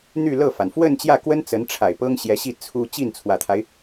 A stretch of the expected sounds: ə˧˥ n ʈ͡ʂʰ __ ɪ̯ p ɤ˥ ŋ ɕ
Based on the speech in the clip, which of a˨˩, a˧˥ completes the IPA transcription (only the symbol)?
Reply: a˨˩